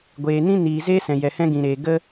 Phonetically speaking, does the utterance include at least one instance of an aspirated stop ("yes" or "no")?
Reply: no